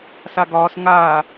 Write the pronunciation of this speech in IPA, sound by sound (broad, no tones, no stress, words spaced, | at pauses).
saɡɒːs ŋaː